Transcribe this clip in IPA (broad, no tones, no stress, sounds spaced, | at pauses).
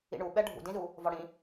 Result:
ḭ ɳ u ɓ ɛ ɖʱ ṵ d ĩ z u | v ɔ ɽ ĩ